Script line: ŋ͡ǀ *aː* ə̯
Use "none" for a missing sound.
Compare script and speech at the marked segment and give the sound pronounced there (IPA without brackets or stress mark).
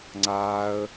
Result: aː